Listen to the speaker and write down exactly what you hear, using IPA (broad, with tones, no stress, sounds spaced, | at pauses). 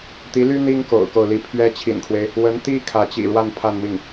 t̪ i˧˥ l y˥ n̪ i˥ ŋ k o̰˨˩ ʊ̯ k o˥˩ ʊ̯ l i˥ pʰ ɥ ɛ˥ t͡ɕʰ ḭ˨˩ n kʰ w e˦ ɪ̯ | w ə˧˥ n t̪ i˥ kʰ ä˧˥ t͡ɕ ḭ˨˩ ɻ w a˥˧ n pʰ a˥˧ n m i˥˩ ŋ